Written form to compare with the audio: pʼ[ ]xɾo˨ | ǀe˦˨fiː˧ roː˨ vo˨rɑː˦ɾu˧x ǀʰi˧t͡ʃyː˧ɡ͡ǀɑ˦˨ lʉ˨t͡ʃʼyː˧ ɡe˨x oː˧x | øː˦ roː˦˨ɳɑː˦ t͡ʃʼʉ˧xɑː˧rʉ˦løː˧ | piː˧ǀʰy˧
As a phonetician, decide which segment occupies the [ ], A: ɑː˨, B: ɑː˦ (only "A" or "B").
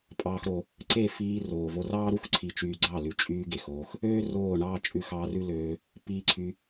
A